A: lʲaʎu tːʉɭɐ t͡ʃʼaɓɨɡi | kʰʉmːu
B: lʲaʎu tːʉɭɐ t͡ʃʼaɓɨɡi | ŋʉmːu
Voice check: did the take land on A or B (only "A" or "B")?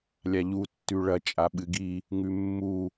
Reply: B